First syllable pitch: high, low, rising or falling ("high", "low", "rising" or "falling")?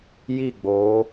falling